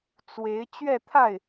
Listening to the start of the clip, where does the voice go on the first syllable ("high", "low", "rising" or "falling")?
rising